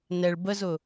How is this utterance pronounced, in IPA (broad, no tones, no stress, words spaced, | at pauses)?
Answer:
nɛɭ bəzʊ